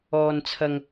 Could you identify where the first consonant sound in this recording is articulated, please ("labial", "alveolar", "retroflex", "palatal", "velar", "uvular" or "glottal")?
alveolar